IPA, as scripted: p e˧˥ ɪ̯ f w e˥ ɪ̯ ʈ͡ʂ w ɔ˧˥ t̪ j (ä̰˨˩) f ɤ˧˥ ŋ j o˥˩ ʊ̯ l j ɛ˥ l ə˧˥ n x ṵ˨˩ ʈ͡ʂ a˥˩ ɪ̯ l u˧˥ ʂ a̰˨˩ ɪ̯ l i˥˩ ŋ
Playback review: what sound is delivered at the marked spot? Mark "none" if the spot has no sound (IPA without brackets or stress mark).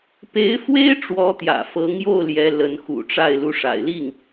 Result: ä̰˨˩